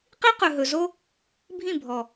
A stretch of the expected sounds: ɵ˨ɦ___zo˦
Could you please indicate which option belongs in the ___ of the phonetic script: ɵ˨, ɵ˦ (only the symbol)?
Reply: ɵ˨